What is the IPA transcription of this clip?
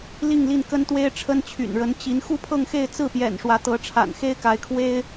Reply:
l i˥˧ ŋ l i˥˩ n k ə˥ n t̪ w e˥ ɪ̯ ʈ͡ʂʰ ə˥ n t͡ɕʰ y̰˨˩ n ɻ ə˧˥ n t͡ɕ i˧˥ n x u˥˧ pʰ ɤ˥˧ ŋ x e˥˧ ɪ̯ t͡s ɹ̩˥˩ p j ɛ̰˨˩ n ʂ w ä˧˥ t̪ ɤ˧˥ ʈ͡ʂʰ a̰˨˩ n x e˥ ɪ̯ k a˧˥ ɪ̯ kʰ w e˥ ɪ̯

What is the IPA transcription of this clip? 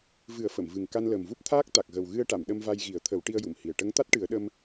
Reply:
v ɨ˨˩˦ ə̯ f ə˨˩˨ m v ɨ˨˩ ŋ k a˧ n l əː˨˩ m v u˦˥ p̚ t̪ʰ aː˦˥ k̚ t̪ a˨˩ k̚ ɣ ə˨˩ w ɣ ɨ˧ ə̯ ʈ a˨˩˨ m ɗ ə˧ m v a˧ j ɣ i˨˩˦ ə̯ t̪ʰ ə˨˩˦ w ʈ i˧ ə̯ j u˨˩˨ m h i˨˩ ə̯ ʈ ə˧˥ ŋ t̪ a˦˥ t̚ ʈ ɨ˨˩˦ ə̯ ɗ ə˧ m

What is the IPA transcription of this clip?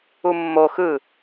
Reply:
u mː o x ɯ

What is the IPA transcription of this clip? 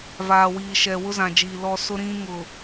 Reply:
v aː˨ w iː˨ ʃ ɛ˨ w ʊ˦ z ã˨ d͡ʒ iː˨ l ɔ˨ s ʊ˦ ɾ ĩ˦ ŋ ʊ˨

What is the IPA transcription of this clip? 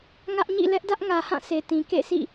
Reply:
ŋ ä˦ ʔ ɲ ḭ˦˨ l ɛ˦ ʔ d ä˦ ʔ ŋ ä˨ h ã˦˨ sʰ e˨ t ĩ˨ k ḛ˦˨ s ḭ˦˨

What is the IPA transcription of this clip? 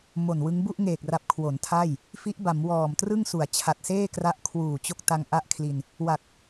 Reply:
m o˨˩ n w ɯ˦˥ ŋ b u˥˩ ʔ ŋ eː˨˩ k̚ r a˨˩ p̚ kʰ w o˩˦ n tʰ a˥˩ j | f i˦˥ ʔ b a˩˦ m w ɔː˨˩ m t r ɯ˥˩ ŋ s u˩˦ a̯ t͡ɕʰ a˨˩ t̚ s eː˥˩ k r a˦˥ ʔ kʰ w uː˨˩ t͡ɕ o˥˩ k̚ t a˧ ŋ ʔ a˦˥ ʔ kʰ l i˧ n | w a˨˩ k̚

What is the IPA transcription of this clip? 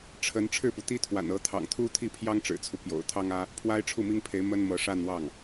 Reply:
ʈ͡ʂʰ ə˧˥ n ʈ͡ʂʰ ɻ̩˥˩ p u˩ t̪ i˥ t̪ʰ w a̰˨˩ n ɤ˧˥ t̪ʰ ɑ̰˨˩ ŋ t̪ʰ u˥ t̪ʰ i˥˩ pʰ j ɑ˥ ŋ ʈ͡ʂ ɻ̩˨˩ t͡sʰ u˦ p j o̰˨˩ ʊ̯ t̪ʰ ɑ˥ ŋ ä˥ | pʰ w a˥ ɪ̯ ʈ͡ʂʰ u˥˩ m i˥ ŋ pʰ e˧˥ ɪ̯ m ə˥ n m ɤ˧˥ ʂ a˥˧ n w ɑ˥˩ ŋ

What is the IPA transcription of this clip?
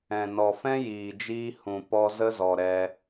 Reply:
ɛ̃˨ n ɔ˨ f ɛ̃˦ j iː˨ d͡ʒ iː˧ h ũ˨ p ɔ˦ z ə˦ z ɔ˨ ɾ ɛ˧

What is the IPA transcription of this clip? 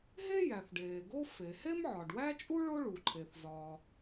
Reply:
ɦ e˥ j æ˩ θ ɖ eː˩ ɡ o˥ f e˩ h e˥ m ʕ ɒ˩ ɖ w æ˥ t͡ʃʼ u˥ ɭ o˥ ɭ u˩ ǃʰ e˩ θ z ɒː˩

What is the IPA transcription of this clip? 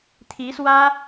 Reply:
t̪ʰ i˧˥ s w ä˥

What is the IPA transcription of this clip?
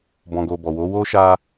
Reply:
b ɔ̃˨ ɡ o˨ b ɔ˨ w o˨˦ w o˦ ʃ a˦

